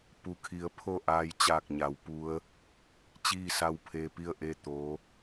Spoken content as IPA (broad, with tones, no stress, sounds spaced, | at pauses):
p u˩ kʰ i˩˧ ə̯ pʰ o˥˨ ʔ aː˧ j t͡ɕ aː˧˩ k̚ ɲ a˩˧ w p u˧˥ ə̯ | t͡ɕ iː˥˨ s a˥˨ w pʰ e˧ p i˥˨ ə̯ ʔ e˥˨ t̪ oː˧˥